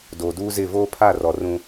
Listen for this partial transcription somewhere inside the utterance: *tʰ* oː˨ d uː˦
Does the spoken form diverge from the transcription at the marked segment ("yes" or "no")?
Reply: yes